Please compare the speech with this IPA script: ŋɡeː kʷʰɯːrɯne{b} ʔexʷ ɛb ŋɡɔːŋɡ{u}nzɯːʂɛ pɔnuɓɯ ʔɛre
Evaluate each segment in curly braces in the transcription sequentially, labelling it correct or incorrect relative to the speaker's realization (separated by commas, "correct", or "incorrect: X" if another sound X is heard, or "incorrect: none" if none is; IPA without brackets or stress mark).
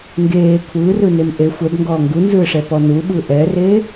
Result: incorrect: m, correct